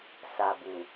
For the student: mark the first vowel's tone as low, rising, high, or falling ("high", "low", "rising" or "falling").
low